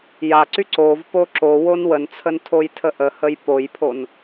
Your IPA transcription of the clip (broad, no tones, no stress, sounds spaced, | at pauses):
j a ǀ y ǀ o v p o ǁ o w o n w ə n t͡sʰ ə n tʰ o j tʰ ə ʔ ə h ə j p o j pʰ o n